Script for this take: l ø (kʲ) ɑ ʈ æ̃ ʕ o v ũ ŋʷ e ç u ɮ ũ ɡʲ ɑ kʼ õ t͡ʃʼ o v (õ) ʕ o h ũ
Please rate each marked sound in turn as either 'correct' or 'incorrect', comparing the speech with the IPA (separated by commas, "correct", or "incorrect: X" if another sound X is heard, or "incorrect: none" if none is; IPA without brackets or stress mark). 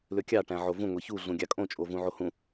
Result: correct, incorrect: ũ